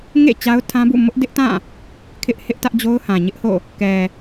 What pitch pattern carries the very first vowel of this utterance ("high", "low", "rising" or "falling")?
falling